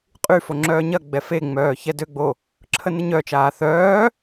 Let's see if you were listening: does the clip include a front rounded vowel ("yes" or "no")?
yes